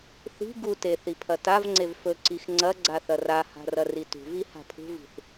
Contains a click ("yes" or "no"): yes